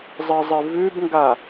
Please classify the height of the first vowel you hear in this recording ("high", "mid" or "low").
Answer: high